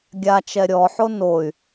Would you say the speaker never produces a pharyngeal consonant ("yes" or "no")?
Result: no